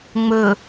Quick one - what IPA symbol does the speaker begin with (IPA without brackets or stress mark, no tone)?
ŋ͡m